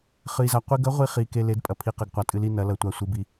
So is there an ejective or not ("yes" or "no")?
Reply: yes